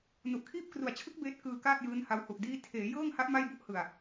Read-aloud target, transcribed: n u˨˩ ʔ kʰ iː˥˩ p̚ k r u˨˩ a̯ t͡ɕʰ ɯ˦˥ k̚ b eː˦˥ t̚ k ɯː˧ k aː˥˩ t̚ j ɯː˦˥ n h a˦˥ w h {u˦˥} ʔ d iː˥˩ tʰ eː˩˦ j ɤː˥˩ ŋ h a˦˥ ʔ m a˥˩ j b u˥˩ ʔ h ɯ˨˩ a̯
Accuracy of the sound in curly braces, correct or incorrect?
incorrect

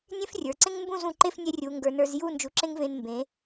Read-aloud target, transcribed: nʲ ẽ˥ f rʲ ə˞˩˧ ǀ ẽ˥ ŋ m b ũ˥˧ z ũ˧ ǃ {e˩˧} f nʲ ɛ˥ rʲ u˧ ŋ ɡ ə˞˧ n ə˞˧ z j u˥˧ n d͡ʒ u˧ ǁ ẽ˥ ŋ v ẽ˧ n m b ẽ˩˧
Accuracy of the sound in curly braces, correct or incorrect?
incorrect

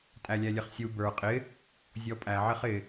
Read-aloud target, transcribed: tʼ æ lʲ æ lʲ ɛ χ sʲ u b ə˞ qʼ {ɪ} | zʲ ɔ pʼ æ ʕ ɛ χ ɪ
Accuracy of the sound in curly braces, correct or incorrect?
correct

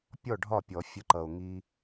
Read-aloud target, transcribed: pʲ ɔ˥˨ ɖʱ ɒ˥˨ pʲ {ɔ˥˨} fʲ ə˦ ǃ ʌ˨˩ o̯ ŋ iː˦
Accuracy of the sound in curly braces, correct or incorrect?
incorrect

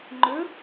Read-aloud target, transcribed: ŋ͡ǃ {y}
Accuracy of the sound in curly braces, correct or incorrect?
incorrect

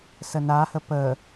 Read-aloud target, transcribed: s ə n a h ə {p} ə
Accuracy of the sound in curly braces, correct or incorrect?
correct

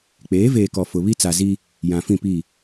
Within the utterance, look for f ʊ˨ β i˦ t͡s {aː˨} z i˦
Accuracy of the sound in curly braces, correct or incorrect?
incorrect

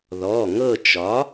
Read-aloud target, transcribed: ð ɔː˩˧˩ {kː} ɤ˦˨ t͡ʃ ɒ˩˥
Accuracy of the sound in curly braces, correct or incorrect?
incorrect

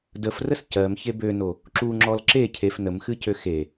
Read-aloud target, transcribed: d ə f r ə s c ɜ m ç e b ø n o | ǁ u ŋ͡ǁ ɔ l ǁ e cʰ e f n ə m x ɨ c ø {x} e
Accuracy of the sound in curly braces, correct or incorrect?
correct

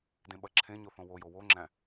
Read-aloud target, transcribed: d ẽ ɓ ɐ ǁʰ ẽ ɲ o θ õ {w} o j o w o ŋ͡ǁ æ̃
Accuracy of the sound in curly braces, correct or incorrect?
correct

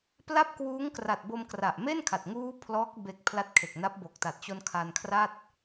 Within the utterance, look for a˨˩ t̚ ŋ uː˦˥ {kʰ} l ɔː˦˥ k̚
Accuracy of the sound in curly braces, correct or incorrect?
incorrect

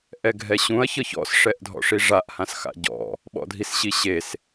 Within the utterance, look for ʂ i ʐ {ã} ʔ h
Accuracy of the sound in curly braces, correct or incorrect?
incorrect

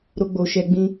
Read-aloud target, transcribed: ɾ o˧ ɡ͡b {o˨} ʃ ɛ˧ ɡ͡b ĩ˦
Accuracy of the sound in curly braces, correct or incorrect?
correct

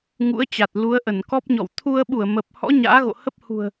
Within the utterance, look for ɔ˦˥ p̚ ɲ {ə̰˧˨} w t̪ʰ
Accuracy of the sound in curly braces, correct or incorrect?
incorrect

